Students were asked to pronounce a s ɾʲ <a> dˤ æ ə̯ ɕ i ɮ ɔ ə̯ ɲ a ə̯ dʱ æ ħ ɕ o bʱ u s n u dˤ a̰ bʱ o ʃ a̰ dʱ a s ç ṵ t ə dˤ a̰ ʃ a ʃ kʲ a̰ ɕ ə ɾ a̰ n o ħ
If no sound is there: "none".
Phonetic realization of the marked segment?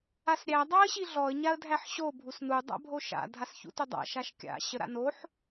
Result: æ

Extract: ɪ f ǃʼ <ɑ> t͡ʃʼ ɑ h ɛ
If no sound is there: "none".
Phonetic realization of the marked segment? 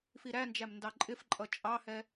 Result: ʌ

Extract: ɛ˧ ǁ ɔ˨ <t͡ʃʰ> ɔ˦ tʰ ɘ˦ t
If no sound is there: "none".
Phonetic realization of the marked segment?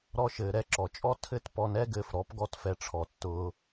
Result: t͡ʃʼ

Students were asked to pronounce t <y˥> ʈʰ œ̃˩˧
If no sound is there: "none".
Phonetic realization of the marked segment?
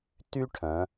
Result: y˥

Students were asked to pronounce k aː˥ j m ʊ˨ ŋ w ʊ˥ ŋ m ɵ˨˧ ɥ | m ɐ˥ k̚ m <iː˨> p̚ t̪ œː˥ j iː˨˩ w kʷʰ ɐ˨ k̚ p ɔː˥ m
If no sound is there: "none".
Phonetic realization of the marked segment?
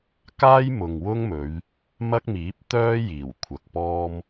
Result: iː˨˥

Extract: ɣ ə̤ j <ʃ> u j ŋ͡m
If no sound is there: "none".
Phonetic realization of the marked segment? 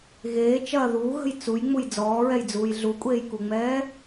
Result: t͡s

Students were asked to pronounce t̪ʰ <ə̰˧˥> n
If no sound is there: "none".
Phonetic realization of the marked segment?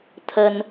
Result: ə˧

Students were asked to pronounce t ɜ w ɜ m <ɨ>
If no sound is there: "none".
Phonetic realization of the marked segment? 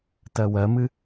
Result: ɨ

